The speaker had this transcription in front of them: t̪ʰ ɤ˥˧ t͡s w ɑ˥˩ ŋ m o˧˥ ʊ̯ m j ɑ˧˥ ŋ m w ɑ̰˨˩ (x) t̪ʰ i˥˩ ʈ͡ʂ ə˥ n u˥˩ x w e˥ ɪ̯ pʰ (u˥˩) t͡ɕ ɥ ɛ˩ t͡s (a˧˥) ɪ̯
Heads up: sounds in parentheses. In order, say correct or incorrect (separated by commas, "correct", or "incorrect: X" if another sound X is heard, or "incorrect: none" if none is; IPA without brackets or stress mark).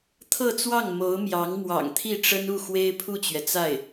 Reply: incorrect: ŋ, correct, incorrect: a˥˩